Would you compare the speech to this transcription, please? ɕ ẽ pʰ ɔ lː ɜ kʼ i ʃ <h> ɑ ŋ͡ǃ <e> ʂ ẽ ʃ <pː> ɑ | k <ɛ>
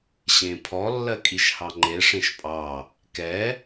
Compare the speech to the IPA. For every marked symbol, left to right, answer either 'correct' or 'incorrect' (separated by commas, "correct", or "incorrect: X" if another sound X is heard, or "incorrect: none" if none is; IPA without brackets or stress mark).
correct, correct, incorrect: pʼ, correct